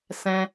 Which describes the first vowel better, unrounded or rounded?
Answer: unrounded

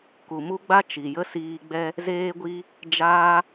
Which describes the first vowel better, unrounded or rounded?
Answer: rounded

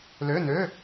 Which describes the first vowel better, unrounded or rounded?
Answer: rounded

